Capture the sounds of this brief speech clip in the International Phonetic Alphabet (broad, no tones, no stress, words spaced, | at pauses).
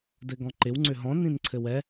dɘɡɔ̃ǃɪw ŋ͡ǀʏɦɔ̃ nĩnǀʰɘwɛ